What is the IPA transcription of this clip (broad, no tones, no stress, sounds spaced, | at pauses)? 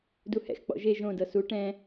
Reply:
d u h ɛ̰ x k͡p ɔ̰ ʒ e ʒ õ d ɤ s u ʈ ɛ̃